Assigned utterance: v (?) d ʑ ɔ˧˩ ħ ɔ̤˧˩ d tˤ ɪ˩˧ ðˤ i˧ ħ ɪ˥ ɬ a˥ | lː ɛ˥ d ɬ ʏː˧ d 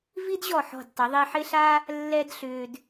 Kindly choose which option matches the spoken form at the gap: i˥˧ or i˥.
i˥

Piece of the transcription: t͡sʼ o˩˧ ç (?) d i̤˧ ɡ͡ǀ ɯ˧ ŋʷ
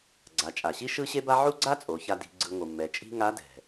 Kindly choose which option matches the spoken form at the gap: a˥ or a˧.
a˧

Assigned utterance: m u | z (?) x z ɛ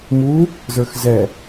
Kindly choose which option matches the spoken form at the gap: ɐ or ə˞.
ə˞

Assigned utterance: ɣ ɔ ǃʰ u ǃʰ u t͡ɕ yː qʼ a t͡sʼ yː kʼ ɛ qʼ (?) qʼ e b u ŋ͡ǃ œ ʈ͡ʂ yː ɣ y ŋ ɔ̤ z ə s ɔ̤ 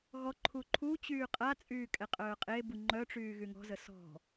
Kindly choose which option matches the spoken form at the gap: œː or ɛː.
œː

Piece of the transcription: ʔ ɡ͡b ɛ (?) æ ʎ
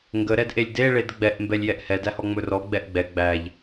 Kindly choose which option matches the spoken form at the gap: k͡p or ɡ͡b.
ɡ͡b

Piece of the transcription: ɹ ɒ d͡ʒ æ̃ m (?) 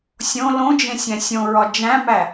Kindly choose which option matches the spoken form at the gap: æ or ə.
æ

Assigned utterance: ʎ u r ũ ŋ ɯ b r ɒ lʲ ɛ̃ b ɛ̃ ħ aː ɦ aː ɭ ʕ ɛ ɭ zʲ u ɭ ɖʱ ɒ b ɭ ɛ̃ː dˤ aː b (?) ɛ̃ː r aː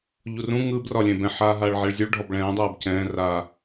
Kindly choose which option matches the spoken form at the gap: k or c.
c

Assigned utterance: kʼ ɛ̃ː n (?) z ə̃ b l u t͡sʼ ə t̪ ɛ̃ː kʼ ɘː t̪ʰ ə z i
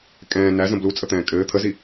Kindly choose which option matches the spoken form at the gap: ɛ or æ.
æ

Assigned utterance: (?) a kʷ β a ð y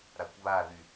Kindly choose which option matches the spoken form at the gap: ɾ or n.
ɾ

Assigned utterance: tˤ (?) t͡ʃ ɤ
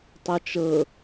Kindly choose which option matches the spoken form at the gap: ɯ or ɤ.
ɤ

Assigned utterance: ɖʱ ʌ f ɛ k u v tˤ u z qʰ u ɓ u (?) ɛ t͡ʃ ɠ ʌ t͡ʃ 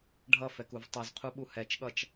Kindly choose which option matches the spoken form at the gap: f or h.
h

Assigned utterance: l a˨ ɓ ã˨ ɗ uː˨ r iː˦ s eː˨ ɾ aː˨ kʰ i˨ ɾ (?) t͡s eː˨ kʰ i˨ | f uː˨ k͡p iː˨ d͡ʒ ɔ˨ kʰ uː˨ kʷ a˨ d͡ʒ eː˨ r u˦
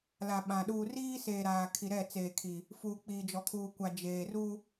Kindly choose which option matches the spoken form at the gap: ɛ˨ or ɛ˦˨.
ɛ˦˨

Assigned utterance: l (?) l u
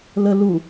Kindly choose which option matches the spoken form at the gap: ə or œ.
ə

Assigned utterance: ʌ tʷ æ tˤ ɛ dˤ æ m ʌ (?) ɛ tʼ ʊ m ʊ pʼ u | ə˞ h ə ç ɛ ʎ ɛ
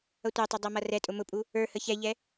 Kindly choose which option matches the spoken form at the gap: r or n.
r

